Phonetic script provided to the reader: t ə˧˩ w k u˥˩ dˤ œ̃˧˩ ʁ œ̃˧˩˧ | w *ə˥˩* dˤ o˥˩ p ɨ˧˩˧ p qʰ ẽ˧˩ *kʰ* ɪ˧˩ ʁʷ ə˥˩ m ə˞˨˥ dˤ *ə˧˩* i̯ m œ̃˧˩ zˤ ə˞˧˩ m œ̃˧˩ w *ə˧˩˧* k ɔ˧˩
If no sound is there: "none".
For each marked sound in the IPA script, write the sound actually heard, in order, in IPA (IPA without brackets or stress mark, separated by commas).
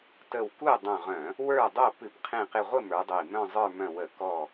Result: ə˞˥˩, q, ə˧˩, ə˧˩˧